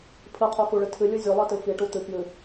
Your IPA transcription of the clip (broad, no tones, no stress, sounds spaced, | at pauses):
pʰ ɨ qʰ o k u ɭ ɨ tʰ ɨ lʲ u zʲ o lˠ i t ɨ f i ʈ u t̪ ɨ k j ɨ